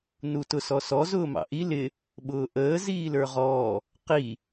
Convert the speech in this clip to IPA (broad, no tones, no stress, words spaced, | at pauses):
nutʊsɔsɔ zʊːmɑ̰ʔi lɪ | ɓʊːʔəː ziːlə˞ʁɔː | qi